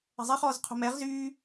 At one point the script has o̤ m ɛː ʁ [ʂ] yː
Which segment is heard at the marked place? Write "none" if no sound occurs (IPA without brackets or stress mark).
z